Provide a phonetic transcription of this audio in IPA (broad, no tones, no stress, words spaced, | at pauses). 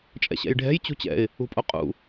t͡ʃʼɛ̰ɕɛ̰jɖʱɛ̤j t͡ɕṳt͡ɕɛ̰ɪ̯ | ṳpʼoqʼṵ